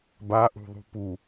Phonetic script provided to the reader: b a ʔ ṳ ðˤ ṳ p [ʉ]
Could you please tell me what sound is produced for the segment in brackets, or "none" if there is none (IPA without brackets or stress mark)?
u